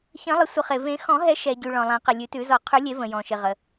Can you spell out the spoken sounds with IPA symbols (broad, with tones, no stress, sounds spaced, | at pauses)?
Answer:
ç ə̃˨˩˦ lˠ ɪ˨˩˦ sʷ ə˨˩˦ χ e˩ v ẽ˨˩˦ x ɔ̃˨˩˦ ɦ ɛ˨˩˦ ʃ ɛ˩ ɟ y˩ ɭ ɔ̃˩ lˠ ã˨˩˦ q ɪ˩ lʲ ʉ˨˩˦ t ʉ˨˩˦ z ɔ˨˩˦ qʰ ʉ˨˩˦ lʲ e˨˩˦ v ə̃˩ j ɔ̃˩ ʃ ɪ˩ ʁ ə˩